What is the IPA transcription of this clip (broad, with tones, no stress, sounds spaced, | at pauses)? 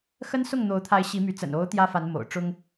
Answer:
x ə˦ n s ʊ˥˨ ŋ n̪ o˨˦ ʊ̯ t̪ʰ a˨˦ ɪ̯ ɕ i˨˦ m y˨˦ t͡s ə̰˨˩ n o˨˦ ʊ̯ t̪ j ä˦ f a˨˦ n m o̰˨˩ ʊ̯ ʈ͡ʂ ʊ˦ ŋ